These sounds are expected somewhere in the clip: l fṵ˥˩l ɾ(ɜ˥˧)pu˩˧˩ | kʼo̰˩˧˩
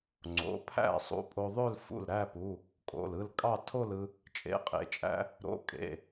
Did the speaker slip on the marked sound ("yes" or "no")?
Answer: yes